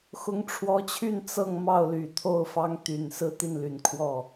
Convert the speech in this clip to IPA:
x ʊ˧˥ ŋ ʈ͡ʂʰ w ɔ˧˥ t͡ɕʰ y˥˧ n t͡s ɤ˥˧ ŋ m ɑ˥˩ ʊ̯ l y˨˩ t̪ʰ o˥˩ ʊ̯ f ɑ˥ ŋ t̪ y˨˩ n s ɹ̩˥˧ t̪ i˥˩ n l y˨˩ n kʰ w ɔ˥˩

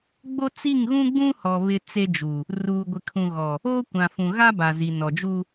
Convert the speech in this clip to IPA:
ɡ͡b o˦ t͡s i˦˨ ŋ ɣ ũ˦ ɡ͡b ũ˦ h ɔ˨ β ɪ˦ t͡s e˦ d͡ʒ u˨ | r uː˨ ɡʷ ɪ˨ kʰ ũ˨ ɣ ɔ˨ | oː˦ kʷ ã˨ f ũ˨ ɣ a˦ b a˨ z i˨ n ɔ˨ d͡ʒ u˦

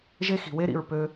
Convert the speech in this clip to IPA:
ʒ e˦ x i̤˨ w e˦ ɾ ḭ˧ ɹ p ø˧

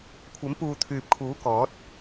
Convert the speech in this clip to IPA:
kʷʰ ɐ˨˥ m p uː˨ t̪ʰ yː˨ p̚ kʰ uː˨˥ k ɔː˨˥ t̚

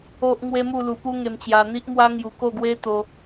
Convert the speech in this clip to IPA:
o˦ ʔ ŋ w e˦ m u˥˧ l u˧ p u˦ ŋ e˧ m t͡ɕ j a˧ n̪ i˦ ʔ m w a˦ ŋ j u˧ k o˥˧ ɡ w e˦ t̪ o˧

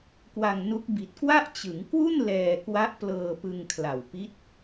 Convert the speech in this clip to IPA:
k w a˧ ŋ n u˦˥ k̚ b i˨˩ t̚ k w a˥˩ ʔ t͡ɕ ɯ˩˦ ŋ k w u˥˩ n l ɛː˧ k w a˦˥ ʔ p l ɤː˧ p ɯ˧ ŋ kʰ l a˨˩ w p i˦˥ t̚

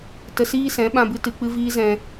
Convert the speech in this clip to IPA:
t ə˧ s iː˦ s ɛ̃˨˦ ɓ ã˦ b ɨ˦ t ɨ˧ k͡p ɨ˦ v iː˦ z ɛ̃˧

